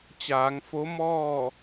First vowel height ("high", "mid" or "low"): low